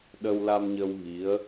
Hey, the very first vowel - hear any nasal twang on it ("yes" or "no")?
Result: no